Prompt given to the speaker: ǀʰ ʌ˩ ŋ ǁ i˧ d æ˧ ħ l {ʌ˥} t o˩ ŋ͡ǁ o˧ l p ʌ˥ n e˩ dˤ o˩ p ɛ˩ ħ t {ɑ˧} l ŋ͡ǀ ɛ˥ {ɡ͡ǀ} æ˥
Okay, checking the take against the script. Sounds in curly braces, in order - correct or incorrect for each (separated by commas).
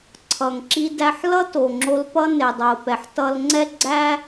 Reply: correct, incorrect, correct